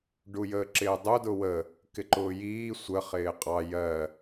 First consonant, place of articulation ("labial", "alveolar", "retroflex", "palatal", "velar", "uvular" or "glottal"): retroflex